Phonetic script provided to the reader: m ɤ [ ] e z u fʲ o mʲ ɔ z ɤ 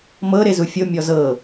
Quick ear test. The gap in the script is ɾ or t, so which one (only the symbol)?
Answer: ɾ